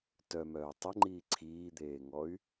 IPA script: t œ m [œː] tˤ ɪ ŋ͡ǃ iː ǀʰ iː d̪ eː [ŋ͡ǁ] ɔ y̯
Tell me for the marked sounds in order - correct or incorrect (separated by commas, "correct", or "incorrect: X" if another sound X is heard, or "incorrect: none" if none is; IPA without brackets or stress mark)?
correct, incorrect: ŋ